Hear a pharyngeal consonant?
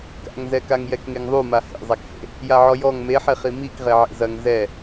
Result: yes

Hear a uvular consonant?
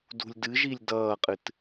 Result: yes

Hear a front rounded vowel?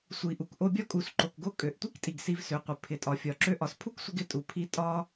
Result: yes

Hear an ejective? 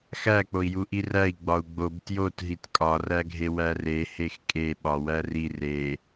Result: yes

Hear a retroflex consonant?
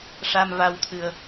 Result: yes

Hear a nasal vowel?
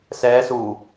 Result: no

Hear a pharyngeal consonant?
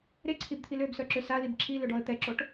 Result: no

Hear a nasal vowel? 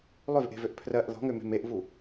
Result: no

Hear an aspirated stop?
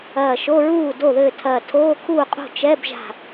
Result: yes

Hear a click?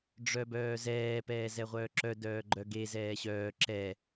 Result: yes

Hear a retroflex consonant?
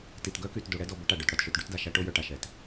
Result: yes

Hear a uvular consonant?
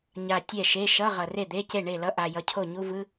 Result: yes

